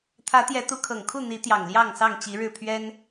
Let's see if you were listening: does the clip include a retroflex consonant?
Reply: yes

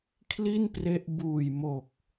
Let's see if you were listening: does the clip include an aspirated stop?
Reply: yes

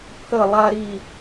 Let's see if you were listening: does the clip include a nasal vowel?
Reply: no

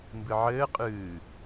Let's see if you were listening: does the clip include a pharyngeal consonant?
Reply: yes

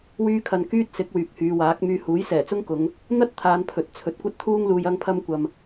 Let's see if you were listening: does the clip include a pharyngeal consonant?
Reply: no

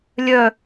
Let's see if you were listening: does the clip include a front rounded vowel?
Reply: yes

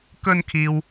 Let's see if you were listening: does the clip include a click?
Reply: no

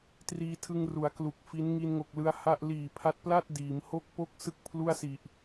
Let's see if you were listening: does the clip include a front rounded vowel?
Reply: no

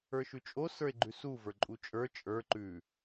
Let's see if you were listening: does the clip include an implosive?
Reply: no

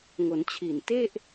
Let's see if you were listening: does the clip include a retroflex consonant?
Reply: no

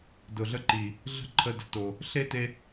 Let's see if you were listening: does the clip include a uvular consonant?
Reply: no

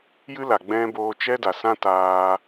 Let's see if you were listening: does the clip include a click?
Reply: no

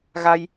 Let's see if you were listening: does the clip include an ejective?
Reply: no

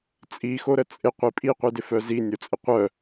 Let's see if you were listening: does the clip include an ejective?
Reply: yes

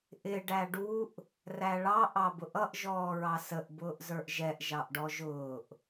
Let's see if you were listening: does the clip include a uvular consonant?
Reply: no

